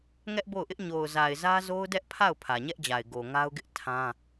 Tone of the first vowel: high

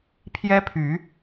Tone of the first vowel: high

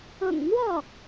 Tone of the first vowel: low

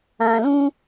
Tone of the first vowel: low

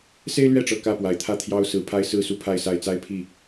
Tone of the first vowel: high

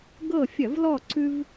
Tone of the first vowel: falling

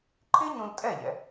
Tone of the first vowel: high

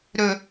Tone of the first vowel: low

